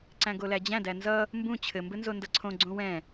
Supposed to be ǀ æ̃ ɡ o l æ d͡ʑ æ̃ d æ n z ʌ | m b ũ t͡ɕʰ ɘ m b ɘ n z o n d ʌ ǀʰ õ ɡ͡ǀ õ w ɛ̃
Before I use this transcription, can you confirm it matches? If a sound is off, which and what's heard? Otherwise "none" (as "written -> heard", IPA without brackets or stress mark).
none